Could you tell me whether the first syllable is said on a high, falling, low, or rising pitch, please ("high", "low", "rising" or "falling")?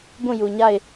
falling